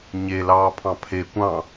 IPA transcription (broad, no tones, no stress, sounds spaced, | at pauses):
ɲ e l ɑː pʰ ɑ̃ pʰ e kʷ ɑ̃